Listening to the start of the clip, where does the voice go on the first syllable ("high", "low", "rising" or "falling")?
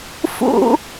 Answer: high